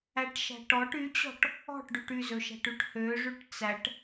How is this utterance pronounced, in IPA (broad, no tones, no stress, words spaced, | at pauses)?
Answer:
æʈʃæ̤ʈɔʈ yt͡ɕɔ̤ʈ | ɔ̤ʈɖʉʈ yzɵʃæ̤ʈʉʈ høʐʉʈ t͡sæʈ